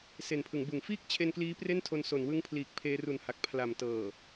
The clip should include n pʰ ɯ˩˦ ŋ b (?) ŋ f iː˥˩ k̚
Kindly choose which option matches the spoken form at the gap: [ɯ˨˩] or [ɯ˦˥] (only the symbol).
ɯ˨˩